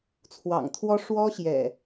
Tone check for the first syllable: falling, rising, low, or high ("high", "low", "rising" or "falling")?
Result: low